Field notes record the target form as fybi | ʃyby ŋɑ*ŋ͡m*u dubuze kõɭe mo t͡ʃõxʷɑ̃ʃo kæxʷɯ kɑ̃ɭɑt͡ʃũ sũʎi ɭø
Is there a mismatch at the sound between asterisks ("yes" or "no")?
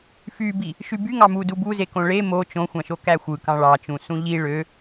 yes